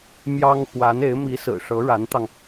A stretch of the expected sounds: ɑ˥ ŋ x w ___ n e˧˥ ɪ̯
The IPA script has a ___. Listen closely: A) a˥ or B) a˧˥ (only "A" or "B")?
B